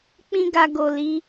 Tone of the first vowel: high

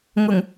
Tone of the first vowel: low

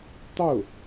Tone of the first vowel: falling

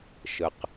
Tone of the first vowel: low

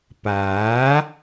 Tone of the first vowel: rising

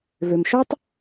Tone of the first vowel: low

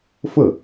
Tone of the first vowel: falling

